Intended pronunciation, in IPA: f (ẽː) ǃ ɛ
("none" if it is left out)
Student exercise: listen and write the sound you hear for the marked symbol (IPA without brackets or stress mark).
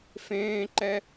ẽː